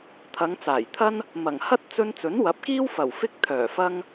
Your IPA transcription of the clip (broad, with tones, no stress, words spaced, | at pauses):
t̪ʰɐ˨˧ŋt͡saː˨˩jt̪ʰɐ˥n | mɐ˨˩ŋhɐ˥t̚t͡sɵ˧n t͡sɵ˨˥nwɐ˨˥p̚kiː˥wfɐ˨˩w fɪ˥k̚t̪ʰœː˨˩fɐ˥ŋ